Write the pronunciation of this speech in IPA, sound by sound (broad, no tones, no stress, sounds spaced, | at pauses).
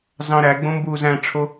z ɑ̃ ɾ æ ɡ͡b õ m b uː z æ̃ ʈ͡ʂʰ o